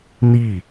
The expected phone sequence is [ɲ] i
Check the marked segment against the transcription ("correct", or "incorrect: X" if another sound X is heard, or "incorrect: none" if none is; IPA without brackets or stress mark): incorrect: n